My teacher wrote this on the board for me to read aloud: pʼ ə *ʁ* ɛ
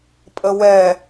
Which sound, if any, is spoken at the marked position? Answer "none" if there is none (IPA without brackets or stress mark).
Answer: w